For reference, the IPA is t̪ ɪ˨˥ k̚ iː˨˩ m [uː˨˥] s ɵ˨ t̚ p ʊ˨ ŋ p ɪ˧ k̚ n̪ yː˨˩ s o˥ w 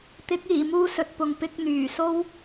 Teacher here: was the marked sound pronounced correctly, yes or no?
no